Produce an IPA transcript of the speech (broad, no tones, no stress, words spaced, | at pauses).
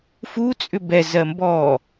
fut͡sʼʏ bɛzɜ mbɔ